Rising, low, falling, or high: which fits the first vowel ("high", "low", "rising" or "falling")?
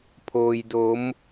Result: low